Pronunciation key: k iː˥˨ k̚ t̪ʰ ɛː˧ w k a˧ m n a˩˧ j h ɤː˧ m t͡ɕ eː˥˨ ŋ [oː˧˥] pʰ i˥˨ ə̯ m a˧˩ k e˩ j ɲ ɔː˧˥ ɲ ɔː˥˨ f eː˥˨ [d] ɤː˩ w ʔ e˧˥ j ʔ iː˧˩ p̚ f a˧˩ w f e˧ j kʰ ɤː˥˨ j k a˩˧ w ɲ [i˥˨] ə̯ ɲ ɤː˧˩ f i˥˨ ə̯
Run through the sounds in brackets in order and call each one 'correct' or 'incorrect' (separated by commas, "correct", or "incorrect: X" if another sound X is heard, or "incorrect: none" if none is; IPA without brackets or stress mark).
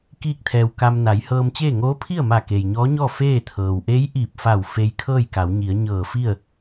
correct, incorrect: t̪ʰ, incorrect: i˩˧